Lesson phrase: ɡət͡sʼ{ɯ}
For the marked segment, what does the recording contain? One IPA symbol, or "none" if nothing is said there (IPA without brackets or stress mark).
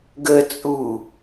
u